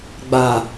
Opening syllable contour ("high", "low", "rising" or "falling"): low